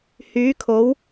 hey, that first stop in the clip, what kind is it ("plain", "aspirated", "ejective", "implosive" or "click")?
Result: aspirated